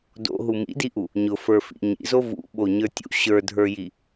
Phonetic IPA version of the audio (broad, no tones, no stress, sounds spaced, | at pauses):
d o̰ ɦ u m ḭ d i ʔ u | ɲ ʊ f ə˞ f ḭ ɲ ḭ z o v ṵ ɓ o ɲ ə˞ tʲ ṵ ɕ ə˞ dʱ ə˞ j i